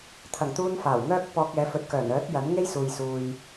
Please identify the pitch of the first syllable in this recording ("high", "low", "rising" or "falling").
low